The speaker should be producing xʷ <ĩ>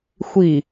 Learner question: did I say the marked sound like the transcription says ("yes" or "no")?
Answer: no